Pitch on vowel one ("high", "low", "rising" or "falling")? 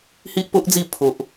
high